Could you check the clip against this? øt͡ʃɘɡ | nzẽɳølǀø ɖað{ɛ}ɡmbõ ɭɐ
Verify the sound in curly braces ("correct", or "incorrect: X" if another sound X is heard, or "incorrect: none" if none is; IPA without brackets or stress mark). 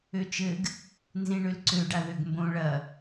incorrect: ø